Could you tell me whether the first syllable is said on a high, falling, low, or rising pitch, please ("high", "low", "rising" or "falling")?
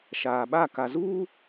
low